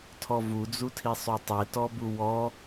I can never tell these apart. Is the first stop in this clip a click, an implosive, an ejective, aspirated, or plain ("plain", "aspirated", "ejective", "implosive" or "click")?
aspirated